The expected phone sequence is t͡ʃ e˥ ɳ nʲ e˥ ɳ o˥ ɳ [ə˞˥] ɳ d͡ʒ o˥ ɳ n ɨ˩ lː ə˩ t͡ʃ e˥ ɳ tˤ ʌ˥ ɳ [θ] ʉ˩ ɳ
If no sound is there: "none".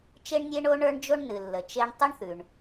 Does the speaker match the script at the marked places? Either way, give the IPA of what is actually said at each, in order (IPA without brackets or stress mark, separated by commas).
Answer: ə˞˥, θ